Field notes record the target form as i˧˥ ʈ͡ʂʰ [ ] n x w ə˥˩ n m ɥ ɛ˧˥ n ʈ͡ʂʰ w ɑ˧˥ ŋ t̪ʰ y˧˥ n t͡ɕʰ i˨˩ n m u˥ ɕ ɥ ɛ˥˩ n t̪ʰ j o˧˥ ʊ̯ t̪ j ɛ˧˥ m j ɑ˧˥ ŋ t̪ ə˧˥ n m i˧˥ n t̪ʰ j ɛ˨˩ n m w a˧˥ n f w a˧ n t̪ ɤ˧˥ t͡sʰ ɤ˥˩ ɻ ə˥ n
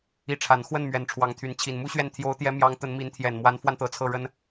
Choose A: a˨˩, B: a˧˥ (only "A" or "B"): A